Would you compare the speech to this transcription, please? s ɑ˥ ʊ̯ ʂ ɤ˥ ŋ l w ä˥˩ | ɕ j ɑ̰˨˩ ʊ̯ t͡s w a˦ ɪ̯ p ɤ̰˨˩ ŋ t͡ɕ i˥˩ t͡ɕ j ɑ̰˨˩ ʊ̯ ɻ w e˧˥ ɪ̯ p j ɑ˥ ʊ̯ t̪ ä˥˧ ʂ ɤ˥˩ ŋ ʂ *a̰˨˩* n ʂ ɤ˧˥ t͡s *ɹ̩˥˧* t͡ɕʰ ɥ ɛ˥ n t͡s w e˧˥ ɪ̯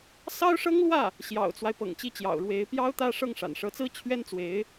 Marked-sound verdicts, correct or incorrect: correct, incorrect

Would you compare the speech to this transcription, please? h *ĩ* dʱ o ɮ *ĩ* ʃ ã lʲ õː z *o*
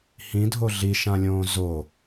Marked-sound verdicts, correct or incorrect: correct, incorrect, correct

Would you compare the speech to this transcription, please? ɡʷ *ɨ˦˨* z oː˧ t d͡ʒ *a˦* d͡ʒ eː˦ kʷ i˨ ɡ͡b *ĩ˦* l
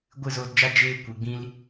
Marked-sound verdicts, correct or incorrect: correct, correct, correct

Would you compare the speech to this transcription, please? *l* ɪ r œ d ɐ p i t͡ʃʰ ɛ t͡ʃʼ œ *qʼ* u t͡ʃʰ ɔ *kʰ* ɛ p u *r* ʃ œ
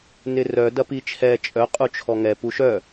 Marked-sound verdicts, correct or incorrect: incorrect, correct, incorrect, incorrect

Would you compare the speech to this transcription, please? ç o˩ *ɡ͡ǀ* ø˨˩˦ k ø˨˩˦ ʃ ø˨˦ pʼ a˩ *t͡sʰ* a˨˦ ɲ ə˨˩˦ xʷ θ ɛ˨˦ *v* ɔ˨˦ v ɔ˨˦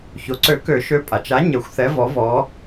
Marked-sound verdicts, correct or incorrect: incorrect, incorrect, correct

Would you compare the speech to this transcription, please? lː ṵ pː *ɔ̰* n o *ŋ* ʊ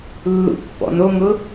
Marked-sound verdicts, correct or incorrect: correct, correct

